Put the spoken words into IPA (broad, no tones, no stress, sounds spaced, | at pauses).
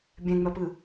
bʲ ɛ̃ ŋ͡m œ p ɨː